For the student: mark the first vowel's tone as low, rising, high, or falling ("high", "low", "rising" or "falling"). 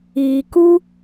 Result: low